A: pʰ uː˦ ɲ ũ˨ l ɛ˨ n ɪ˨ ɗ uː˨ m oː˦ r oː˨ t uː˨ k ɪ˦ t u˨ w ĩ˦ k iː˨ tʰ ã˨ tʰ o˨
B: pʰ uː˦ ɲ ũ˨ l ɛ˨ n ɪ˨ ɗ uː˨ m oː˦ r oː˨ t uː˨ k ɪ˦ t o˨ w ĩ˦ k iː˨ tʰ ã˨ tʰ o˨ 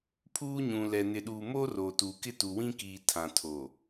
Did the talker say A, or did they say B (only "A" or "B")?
A